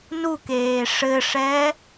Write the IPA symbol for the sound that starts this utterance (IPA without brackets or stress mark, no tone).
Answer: n